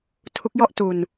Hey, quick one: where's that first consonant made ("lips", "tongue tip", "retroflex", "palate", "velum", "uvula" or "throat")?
tongue tip